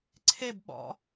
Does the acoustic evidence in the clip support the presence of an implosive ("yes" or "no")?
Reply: yes